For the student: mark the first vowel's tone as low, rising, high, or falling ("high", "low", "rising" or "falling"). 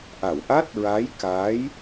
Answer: low